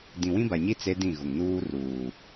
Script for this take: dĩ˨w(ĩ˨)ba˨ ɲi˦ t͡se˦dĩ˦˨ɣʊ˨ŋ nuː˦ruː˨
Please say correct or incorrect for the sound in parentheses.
incorrect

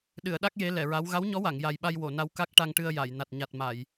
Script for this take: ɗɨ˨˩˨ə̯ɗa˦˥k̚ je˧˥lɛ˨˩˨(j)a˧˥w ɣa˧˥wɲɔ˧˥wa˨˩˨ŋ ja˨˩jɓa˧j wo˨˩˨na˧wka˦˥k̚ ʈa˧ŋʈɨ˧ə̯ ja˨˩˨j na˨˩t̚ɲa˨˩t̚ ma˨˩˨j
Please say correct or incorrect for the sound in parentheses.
incorrect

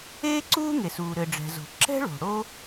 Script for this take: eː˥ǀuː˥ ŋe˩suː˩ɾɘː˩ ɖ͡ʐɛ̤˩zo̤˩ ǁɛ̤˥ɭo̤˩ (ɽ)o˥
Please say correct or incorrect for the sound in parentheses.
correct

